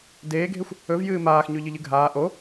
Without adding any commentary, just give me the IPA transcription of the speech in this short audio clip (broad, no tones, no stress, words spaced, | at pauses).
deːɡʱexʷ | ɵvjɨː maːx ɲʉʎɨʎɨɡʱaː ʔo